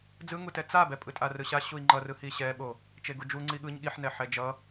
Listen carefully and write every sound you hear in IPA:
d͡z ɯ ŋ u t ɛ t͡s a b ɛ pʼ ɯ tʼ a r ɯ ɕ a ɕ u i̯ ŋ͡ǃ ʌ r ɯ h i ɕ ɛ ɓ o | t͡ʃ e ɡ u d͡ʒ u ŋ͡ǀ i ɠ ɯ ɲ ɠ i ħ n ɛ ħ ɛ d͡ʒ ʌ

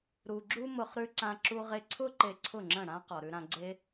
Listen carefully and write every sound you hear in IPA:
ɾ u˨ ɡ͡ǁ u˦ m ʊ˧ χ ɾ ʉ˧ ǀ ã˧ ǁ u˧ ʁ e˧ ǀʰ ʊ˦ ǃ e˧ ǀʰ ʊ˦˨ ŋ͡ǁ ə̃˦˨ ɽ ã˦ q ɔ˨ ɾ ʉ˧ ɾ ã˧ ɡ͡ǀ e˦

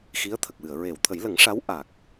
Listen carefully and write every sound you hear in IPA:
x i˧˥ ə̯ t̪ʰ ə˨˩ k̚ w ɨ˨˩˨ ə̯ ɹ e˨˩˨ w t̪ʰ ə˨˩˦ j l ə˨˩˦ ŋ ʂ a˧˥ w ʔ a˨˩ k̚

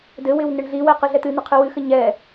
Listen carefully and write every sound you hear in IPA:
d ɘ w ɪ w n ɪ ɳ ɮ i w ɛ q ɨ ɮ ɛ t̪ ɨ n̪ ɘ qʰ ɨ w ɨ x ɘ ɲ ɛ

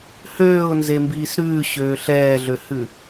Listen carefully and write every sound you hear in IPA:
h øː ʊ̯ n z e m b iː s ɾ ʉː ɕ øː ɬ ɛː ɮ ø h ʉ

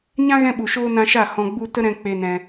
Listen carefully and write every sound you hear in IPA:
ɲ ã˦ ɣ ɛ̃˧ ɓ u˨ ʃ oː˧ n ã˧ ʃ a˦˨ h ɔ̃˧ ɡ͡b u˦ t ə˦ ɾ ɛ̃˧ k͡p e˧ n ɛ̃˧

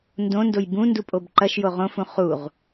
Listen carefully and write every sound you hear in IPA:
n d õ n d o j b ũ n d u pʼ o b ǃ ɐ ʃ j o ʁ õ f ũ χ u ʁ

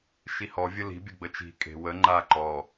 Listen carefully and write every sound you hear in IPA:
ʃ i h ɔ vʲ ə l i̤ bʲ ə ɡ͡b ə t͡ʃ i̤ kʼ e̤ w ə ŋ͡ǃ a ǃ ɔ

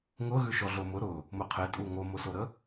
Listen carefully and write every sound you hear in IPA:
ŋ ʊ ɣ ʉ ʃ ɔ ɮ o m ʊ ɾ ʊ | m ʊ qʰ e tʼ u ŋ o m o s o ɾ ə

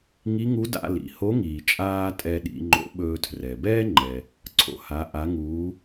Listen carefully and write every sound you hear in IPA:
ŋ i˧˥ ŋ u˧˥ d a̰˧ l ḭ˩ h o˧˥ ŋ iː˩ t͡ʃʼ aː˧ tʼ ɛ˧ ɗ ḭ˩˧ ŋ͡ǃ o̰˧˥ ɓ ɵː˧ tʰ r ɛ˩ b ɛː˥ ŋ͡ǃ ɛ˩ | ǀʰ o̰˩˧ h a˩˧ ʔ a˩˧ ŋ uː˩˧

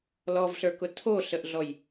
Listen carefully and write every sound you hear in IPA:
l ɔ v ɬ ə˞ k ʊ tʰ o ɬ ə ʔ ɮ ɔ j

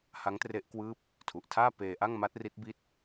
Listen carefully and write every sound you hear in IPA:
h a˦˥ ŋ t r e˦˥ ʔ k w ɯː˦˥ p̚ | tʰ u˨˩ ʔ tʰ aː˥˩ p eː˧ ʔ a˥˩ ŋ m a˦˥ t̚ r i˦˥ t̚ b i˦˥ t̚

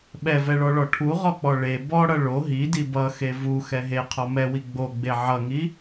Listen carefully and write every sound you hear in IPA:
ɓ ɛ v ɛ ɭ ɔ ɭ ɔ ʈʰ u ʁ ɔ k͡p ɔ ɭ e b ɔ ɽ ʌ ɭ o ɦ i d i b ʌ x e v u x ɛ ɦ e qʰ ɔ m ɛ w i ɡ͡b o ɡ͡b e ʕ ʌ ŋ i

